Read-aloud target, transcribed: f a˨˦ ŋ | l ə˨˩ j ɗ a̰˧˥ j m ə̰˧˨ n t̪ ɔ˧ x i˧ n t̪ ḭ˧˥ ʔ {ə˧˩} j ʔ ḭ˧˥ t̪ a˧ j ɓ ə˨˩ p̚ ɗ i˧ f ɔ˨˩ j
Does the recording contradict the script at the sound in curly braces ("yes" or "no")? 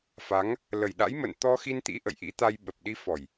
yes